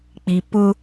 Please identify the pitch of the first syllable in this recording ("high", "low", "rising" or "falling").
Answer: low